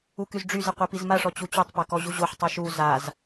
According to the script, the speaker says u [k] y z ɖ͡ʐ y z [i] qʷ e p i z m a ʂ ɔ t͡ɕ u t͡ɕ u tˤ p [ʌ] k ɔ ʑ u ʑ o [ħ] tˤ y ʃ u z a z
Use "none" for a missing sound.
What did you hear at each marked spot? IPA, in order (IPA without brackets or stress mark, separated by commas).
k, e, a, ħ